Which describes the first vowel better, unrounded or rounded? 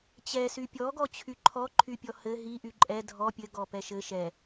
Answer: unrounded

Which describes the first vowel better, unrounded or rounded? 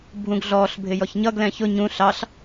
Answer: rounded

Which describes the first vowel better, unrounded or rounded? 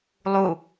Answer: rounded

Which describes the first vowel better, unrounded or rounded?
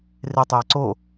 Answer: unrounded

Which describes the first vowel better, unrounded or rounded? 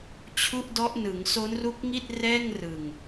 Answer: rounded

